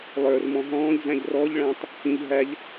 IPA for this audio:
lˠə˞rmɔ̃ ɦɔ̃ːʎzæ̃ʎ rɔʎɭæ̃tˤ | hĩʎ ɦæʎ

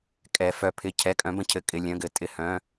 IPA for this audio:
kʼɛ˧˥ fœ˧˥pʰɪ˧˥˧ cʰɛ˧˥˧kʼœ̃˧˥bə̃˧˥˧ cʰɘ˧˥˧ kʼɪ˧˥˧lʲœ̃˧˥˧ɡɘ˧˥ tʼɪ˧˥˧hœ̃˧˥˧

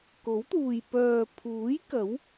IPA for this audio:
ko˨˥wt̪uː˨j pœː˨pʰuː˨˥j kɐ˨˥w

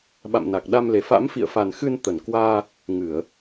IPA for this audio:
ɓa̰˧˨mna˨˩k̚ ɗa˧mle˨˩ fa̰˧˥mfḭ˧˨ə̯fa˨˩nxɨ˧n t̪ə˧˩n kwaː˧ | ŋɨ˧˩˨ə̯

